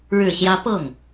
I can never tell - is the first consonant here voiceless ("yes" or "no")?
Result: no